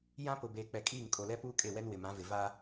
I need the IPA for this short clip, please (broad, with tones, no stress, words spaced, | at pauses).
jã˦pʊ˨ beː˨k͡pɛ˨kʼiː˦˨ŋ kʼo˨lɛ˦puː˦kʼe˦˨ wɛ˦nwɪ˨mã˨˦vɪ˨ va˦